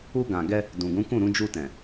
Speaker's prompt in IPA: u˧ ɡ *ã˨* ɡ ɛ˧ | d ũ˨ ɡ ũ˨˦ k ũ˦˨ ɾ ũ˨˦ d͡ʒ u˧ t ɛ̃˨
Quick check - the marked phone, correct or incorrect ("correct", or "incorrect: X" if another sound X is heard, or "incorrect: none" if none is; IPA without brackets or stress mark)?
correct